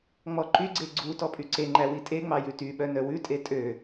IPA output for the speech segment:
ŋ͡m ɔ ǃ y ɡ͡ǀ e ɡ͡ǀ u t ɔ pʼ y ǀ e ŋ͡ǃ æ w i tʼ e ŋ͡m ɑ j ʉ t y ɓ œ n œ w ʉ tʼ e tʼ ø

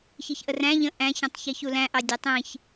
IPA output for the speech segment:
ç i ç ʔ ə r æ̃ ʎ ə̃ ʔ æ̃ ç ə̃ tˤ ç i ç u l æ̃ ʔ ɑ dʲ ɛ tˤ ĩ ç

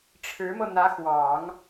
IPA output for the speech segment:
ʈ͡ʂʰ ɻ̩˧˥ m ɤ˧ n̪ ä˧˥ x w ɑ˨˩˦ ŋ

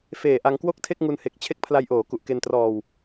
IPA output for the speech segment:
f eː˨˩ ʔ a˧ ŋ k w o˥˩ k̚ tʰ e˥˩ k̚ ŋ u˧ n h e˨˩ k̚ t͡ɕʰ e˦˥ k̚ pʰ l a˧ j ʔ oː˩˦ k u˨˩ ʔ k e˧ n t r ɔː˧ w

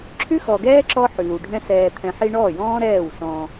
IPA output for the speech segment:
ǁʰ ʉ˦ x ɔ˨ ɡ ɛː˦ ǁ ɔ˦ ħ ʉː˨ w ɖʱ ɛ̃˦ s ɛː˨ t̪ʰ ɛ̃˨ ħ i˧ ɳ ɔː˦˨ j ɔ̃ː˦ ɾ ɛː˦˨ w s ɔ̃˧

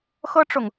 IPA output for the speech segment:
x ɤ˥ ʈ͡ʂ ʊ˨ ŋ

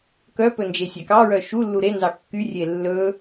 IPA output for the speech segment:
k œ p ɵ n d͡ʒ e sʲ æ k ɑ ɹ œ ʃ u lː u ɾ e n z ɑ kː y rʲ e lː ɵ

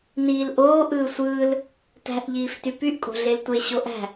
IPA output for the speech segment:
n iː l ʔ oː ʔ ɯː sʷ ɯː l | t æ̤ ʔ ʎ iː f t y p y ʔ kʼ o̤ ɮ e l tʷ e ɕ o ʔ æ̤

